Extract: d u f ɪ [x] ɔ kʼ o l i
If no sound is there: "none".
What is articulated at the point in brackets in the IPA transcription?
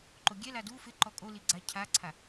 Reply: ǃ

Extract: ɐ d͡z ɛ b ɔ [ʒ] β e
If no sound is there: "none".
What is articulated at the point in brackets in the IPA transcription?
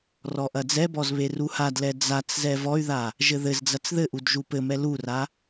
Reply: z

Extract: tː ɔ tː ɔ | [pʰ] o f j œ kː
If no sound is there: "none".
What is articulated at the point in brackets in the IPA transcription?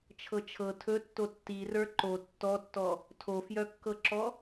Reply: tʰ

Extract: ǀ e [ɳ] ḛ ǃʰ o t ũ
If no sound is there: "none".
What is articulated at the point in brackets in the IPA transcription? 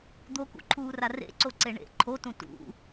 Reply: ɳ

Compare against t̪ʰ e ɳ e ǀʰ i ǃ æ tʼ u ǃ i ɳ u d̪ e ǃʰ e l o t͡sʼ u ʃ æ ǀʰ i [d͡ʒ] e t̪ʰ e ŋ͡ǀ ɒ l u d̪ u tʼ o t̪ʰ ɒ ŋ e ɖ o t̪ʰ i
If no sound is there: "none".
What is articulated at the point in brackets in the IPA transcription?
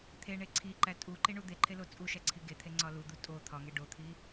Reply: ɡ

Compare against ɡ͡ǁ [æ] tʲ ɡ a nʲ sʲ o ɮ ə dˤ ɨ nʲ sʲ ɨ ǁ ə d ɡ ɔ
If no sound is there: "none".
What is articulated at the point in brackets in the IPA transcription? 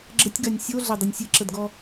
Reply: ə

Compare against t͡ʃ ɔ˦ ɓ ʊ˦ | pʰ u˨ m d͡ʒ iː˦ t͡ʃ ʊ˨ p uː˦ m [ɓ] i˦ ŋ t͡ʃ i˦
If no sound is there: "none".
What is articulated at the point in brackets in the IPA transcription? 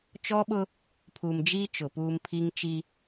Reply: pʰ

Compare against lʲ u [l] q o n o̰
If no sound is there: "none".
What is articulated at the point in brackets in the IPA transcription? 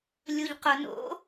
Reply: ʎ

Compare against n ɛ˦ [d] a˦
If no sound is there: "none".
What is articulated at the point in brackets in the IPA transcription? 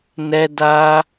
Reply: d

